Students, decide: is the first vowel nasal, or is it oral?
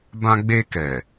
nasal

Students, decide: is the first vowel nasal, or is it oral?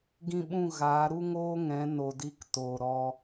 nasal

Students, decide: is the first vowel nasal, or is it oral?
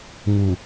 oral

